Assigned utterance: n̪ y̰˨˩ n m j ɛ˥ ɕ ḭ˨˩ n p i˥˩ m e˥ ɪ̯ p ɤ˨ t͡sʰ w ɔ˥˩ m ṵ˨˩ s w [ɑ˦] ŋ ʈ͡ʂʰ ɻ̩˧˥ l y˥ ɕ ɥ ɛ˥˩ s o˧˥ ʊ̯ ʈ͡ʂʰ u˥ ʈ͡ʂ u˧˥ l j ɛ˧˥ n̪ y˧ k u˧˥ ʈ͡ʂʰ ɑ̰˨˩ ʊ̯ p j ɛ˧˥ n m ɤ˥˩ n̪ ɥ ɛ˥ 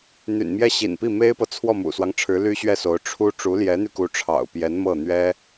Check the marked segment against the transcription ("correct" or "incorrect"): correct